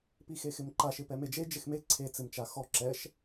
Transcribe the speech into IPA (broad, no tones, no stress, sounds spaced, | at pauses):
p i x e x ɪ m ǃ a ʃ ɪ p ɛ m e d͡ʒ e d͡ʒ ɪ x m e ǀʰ e t͡s ɪ m t͡ʃ a x ɔ ǁ ɛ ʃ